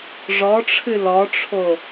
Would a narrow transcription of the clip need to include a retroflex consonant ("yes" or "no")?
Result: yes